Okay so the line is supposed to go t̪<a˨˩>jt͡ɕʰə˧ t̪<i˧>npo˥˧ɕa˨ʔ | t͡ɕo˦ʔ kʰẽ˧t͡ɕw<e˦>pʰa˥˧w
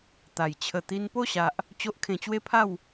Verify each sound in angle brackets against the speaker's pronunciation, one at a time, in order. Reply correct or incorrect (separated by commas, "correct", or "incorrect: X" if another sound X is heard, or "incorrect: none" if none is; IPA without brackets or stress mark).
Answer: correct, correct, correct